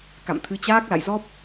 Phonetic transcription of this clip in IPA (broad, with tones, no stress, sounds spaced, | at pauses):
k a̰˧˨ m t̪ʰ ɨ˨˦ t͡ɕ aː˦˥ k̚ l a̰˧˨ j z ɔ˦˥ p̚